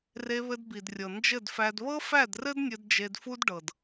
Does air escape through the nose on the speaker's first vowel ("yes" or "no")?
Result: no